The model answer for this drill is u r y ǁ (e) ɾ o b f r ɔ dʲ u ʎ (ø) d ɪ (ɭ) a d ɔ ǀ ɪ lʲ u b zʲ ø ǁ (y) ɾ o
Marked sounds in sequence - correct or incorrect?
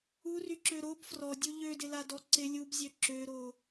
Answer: incorrect: ø, correct, incorrect: l, incorrect: ø

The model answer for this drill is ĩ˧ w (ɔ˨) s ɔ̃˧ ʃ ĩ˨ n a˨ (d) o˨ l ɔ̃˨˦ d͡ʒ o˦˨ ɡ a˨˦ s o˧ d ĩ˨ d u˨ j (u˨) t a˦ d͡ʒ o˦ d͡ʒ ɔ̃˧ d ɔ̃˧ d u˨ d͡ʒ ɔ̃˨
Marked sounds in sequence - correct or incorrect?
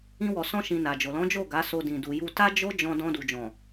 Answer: correct, incorrect: d͡ʒ, incorrect: u˧

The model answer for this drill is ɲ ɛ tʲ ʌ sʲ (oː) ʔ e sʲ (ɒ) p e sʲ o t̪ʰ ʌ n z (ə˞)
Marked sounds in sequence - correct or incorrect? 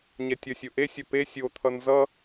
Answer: incorrect: o, incorrect: ʌ, incorrect: ʌ

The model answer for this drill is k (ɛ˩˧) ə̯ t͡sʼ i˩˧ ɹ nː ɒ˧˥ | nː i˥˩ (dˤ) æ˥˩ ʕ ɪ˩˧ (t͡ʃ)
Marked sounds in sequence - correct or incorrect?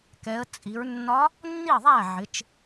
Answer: correct, incorrect: ðˤ, correct

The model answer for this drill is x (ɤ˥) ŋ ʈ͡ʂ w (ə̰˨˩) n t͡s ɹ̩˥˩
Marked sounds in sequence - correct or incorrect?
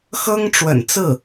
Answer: correct, correct

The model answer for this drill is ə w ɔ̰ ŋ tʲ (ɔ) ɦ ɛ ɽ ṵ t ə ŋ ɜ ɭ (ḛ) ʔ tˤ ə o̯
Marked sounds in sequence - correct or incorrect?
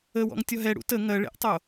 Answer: correct, correct

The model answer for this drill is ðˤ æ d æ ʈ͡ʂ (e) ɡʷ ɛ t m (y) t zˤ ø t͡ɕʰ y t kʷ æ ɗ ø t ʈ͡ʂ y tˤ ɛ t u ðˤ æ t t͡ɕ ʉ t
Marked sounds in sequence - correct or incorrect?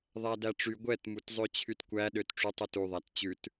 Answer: incorrect: y, incorrect: u

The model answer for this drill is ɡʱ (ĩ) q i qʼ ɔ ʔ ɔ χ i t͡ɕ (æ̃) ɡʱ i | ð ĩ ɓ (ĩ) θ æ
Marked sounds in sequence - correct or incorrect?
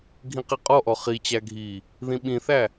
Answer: correct, incorrect: æ, correct

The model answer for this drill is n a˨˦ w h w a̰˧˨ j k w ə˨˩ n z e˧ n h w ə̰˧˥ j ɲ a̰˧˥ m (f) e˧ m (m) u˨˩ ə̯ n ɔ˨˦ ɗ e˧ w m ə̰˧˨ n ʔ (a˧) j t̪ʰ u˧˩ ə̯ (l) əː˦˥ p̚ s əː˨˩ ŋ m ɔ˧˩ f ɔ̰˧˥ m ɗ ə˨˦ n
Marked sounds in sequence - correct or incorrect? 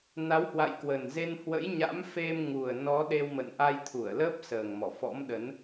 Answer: correct, incorrect: ŋ, correct, correct

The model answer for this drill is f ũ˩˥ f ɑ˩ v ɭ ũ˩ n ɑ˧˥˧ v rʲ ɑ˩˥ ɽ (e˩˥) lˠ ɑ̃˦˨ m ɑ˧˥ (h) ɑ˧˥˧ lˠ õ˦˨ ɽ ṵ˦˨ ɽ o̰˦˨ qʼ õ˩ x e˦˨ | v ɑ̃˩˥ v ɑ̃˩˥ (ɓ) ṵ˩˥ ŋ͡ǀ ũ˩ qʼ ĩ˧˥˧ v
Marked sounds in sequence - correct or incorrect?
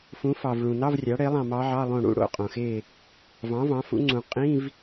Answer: correct, incorrect: ʕ, incorrect: f

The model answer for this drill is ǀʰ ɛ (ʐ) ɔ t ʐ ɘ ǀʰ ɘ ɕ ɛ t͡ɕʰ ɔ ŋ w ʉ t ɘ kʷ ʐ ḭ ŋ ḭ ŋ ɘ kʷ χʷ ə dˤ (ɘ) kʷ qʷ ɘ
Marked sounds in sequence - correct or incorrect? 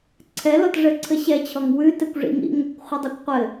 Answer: incorrect: l, incorrect: ʉ

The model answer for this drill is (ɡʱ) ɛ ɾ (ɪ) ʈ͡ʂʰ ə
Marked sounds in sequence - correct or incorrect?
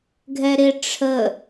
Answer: correct, correct

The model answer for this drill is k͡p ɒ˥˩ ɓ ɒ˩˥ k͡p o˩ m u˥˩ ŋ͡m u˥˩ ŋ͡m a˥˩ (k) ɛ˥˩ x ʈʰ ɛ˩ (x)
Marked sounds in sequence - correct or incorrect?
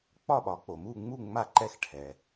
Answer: incorrect: ǃ, incorrect: none

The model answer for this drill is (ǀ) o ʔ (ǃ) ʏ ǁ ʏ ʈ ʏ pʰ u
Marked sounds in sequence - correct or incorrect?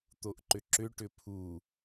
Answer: incorrect: t̪, correct

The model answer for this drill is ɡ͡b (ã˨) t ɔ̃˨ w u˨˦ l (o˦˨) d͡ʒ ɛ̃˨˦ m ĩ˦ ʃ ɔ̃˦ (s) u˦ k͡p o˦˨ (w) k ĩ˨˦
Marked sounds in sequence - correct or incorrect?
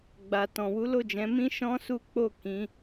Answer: incorrect: a˨, correct, correct, incorrect: none

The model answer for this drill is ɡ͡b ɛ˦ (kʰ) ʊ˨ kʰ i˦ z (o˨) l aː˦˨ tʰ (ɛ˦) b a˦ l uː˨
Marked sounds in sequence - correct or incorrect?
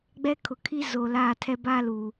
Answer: correct, correct, correct

